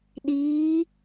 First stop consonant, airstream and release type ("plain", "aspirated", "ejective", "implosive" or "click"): implosive